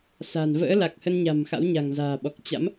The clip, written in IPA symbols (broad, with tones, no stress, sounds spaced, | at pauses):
s a̤˨˩ n v ə̰ː˧˥ l a˨˩ k̚ h ə˧ n ɲ a̤˨˩ m x a̰˧˥ w ɲ a̤˨˩ ŋ z a̤ː˨˩ ɓ ɔ˨˩ k̚ t͡ɕ a̰˧˥ m